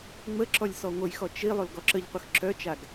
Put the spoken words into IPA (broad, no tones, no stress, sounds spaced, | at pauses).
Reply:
ŋ͡m ə ǁ ɔ lʲ s ɔ ŋʷ ə j x ɔ t͡ʃ i lˠ o l ɡ ɔ ǁ ə ʎ qʷ ə x ǁ œ t͡ʃ a ɡ